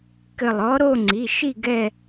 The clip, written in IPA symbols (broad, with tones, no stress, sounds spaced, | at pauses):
k ɘ˧˩ lˠ ɔ˧˥ ɾ o˥˧ ŋ͡ǀ i˩˧˩ ʃ i˥˧ ɡ ɛ˥˧